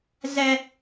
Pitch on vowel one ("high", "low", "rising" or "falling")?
high